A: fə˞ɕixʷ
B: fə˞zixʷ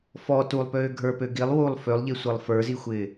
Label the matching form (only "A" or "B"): B